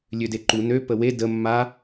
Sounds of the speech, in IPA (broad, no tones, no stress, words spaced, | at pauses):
lʲødeǃu nø pəwe də mːa